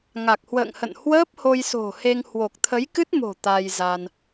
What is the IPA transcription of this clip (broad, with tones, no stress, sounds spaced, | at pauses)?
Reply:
ŋ a˨˩ k̚ h w ə̰ː˧˨ ŋ h ə̰˧˨ n h w əː˦˥ p̚ h o˧ j s o̤˨˩ h e˧ ŋ h w o˨˩ k̚ t̪ʰ ə˨˦ j k ɨ˦˥ t̚ m o̤˨˩ t̪ a˧ j z a˧ n